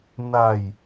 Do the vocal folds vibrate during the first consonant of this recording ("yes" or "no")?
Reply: yes